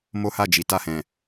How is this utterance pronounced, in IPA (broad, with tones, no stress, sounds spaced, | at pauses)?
m o˦ h a˦˨ d͡ʒ i˨˦ t a˦˨ h ɛ̃˨